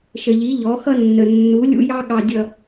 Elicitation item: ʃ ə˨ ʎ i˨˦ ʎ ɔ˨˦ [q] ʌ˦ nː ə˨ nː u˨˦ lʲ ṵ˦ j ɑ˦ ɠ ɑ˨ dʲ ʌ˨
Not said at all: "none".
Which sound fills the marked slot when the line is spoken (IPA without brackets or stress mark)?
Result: x